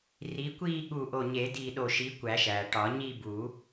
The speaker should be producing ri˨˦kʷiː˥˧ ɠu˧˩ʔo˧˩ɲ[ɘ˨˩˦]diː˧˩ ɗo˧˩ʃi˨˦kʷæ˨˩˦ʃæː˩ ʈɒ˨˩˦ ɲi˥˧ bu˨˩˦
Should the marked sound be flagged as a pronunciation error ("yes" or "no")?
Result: yes